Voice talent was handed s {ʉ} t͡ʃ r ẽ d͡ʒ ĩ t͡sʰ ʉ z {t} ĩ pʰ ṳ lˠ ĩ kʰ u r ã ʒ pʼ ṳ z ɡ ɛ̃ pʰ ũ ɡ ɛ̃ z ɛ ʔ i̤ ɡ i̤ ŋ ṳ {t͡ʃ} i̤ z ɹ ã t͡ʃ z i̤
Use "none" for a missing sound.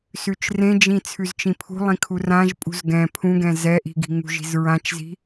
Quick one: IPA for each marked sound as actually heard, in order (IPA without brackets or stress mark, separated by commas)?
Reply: ʉ, t͡ʃ, ʒ